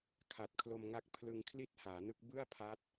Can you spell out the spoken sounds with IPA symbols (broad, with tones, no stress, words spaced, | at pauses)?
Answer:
kʰa˨˩t̚kʰlo˧mŋa˦˥k̚ pʰlɯ˧ŋkʰli˥˩t̚haː˩˦nɯ˦˥k̚ bɯ˥˩a̯ pʰa˦˥t̚